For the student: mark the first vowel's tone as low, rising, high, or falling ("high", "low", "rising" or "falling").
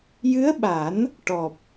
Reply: rising